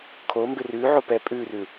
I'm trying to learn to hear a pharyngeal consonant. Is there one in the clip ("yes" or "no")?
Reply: yes